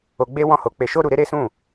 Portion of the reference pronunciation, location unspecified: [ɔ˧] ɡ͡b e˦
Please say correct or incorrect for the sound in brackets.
incorrect